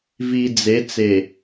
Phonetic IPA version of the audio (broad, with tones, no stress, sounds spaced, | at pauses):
v i˨ d͡z e˨˦ t͡s e˨